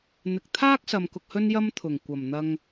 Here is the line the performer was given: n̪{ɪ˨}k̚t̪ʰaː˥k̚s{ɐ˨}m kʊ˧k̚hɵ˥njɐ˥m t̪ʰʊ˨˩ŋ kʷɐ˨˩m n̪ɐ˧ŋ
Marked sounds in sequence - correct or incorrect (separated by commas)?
correct, correct